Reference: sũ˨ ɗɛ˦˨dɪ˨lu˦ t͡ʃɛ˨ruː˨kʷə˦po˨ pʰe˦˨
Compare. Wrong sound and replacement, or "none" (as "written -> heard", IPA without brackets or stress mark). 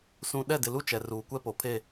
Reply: ə˦ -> ɛ˦